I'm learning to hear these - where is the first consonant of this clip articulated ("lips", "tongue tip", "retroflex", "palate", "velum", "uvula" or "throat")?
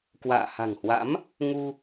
velum